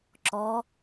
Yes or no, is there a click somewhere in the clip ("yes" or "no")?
yes